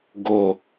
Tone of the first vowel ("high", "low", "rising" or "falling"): low